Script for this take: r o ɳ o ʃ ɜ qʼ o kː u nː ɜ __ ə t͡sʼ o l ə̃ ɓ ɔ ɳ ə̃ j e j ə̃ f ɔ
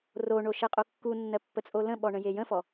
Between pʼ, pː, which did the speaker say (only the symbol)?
pː